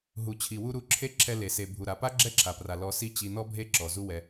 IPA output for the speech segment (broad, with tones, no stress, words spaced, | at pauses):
ɦu˨t͡ɕʰi˨wu˧ ɾu˧ǁʰe˦ ǁʰɛ˧le˨se˨ bʱu˨ɾa˨pa˦ ɡ͡ǁɛ˦ǁʰa˨pra˨ lɔ˧si˦t͡ɕi˧ nɔ˦bʱe˦ǁɔ˨ zu˦wɛ˧